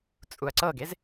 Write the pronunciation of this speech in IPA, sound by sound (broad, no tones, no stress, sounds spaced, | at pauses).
t͡sʼ u ɐ̯ ǀ ɤ ɡ e z